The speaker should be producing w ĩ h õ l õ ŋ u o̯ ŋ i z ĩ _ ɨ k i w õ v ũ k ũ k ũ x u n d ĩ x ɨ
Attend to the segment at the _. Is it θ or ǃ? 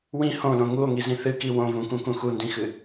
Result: θ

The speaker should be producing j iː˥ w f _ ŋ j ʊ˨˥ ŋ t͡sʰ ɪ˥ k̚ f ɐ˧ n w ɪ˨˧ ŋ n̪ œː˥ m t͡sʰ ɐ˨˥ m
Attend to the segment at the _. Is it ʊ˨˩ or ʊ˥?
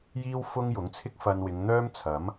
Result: ʊ˥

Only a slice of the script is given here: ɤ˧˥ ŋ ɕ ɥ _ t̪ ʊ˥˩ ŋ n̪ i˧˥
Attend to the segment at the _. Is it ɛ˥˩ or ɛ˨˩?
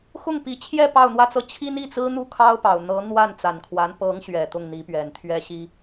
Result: ɛ˨˩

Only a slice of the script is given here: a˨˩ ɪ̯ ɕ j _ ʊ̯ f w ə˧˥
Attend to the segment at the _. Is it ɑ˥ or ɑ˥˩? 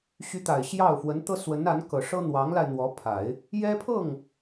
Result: ɑ˥˩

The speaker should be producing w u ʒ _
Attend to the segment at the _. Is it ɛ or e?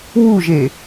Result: e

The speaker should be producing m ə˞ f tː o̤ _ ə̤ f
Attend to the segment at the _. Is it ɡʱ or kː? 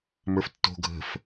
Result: ɡʱ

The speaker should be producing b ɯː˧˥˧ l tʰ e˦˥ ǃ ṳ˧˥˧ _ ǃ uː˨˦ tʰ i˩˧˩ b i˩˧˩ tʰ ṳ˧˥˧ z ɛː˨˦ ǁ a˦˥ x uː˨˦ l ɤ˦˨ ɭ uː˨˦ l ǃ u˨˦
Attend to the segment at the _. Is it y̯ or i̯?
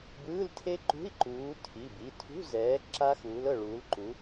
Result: i̯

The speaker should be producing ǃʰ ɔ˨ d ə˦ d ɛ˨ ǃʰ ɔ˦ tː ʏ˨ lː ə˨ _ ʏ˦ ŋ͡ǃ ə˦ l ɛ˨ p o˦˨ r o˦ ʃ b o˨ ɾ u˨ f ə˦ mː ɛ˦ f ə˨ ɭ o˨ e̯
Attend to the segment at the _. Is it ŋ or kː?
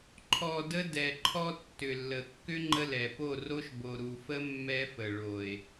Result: kː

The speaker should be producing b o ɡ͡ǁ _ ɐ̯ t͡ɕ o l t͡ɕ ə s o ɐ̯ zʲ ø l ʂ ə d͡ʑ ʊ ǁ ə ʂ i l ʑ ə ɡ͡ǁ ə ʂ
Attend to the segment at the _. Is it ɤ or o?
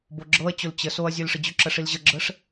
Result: ɤ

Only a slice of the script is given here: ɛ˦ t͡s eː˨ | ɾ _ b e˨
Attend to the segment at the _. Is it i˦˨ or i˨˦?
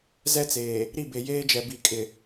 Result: i˦˨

